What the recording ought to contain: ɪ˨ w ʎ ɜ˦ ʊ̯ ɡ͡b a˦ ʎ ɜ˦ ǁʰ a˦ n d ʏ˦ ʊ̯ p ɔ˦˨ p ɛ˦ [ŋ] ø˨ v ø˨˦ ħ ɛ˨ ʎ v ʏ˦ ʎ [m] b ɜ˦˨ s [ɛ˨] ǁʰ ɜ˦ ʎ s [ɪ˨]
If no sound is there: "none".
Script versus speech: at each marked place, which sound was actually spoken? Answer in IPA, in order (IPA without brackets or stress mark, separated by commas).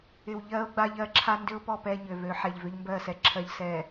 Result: ɲ, m, ɛ˦, ɛ˨